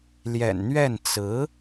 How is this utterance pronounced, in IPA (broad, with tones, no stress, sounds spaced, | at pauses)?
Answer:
l j ɛ̰˨˩ n n̪ ɥ ɛ˥˩ n t͡s ɹ̩˧˥